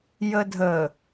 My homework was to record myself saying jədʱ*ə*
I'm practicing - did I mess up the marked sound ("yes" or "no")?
no